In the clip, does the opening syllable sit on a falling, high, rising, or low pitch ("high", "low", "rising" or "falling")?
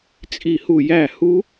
falling